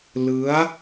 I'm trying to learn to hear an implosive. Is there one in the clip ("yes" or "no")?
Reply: no